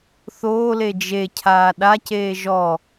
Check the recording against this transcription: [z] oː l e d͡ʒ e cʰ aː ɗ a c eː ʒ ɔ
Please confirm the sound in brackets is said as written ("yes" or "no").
no